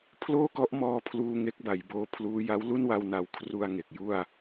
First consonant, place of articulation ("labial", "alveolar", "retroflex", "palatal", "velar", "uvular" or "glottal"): labial